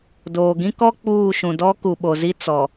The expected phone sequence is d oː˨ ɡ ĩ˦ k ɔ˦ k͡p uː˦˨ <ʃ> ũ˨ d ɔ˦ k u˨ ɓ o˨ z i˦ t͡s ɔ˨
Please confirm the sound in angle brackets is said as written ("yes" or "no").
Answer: yes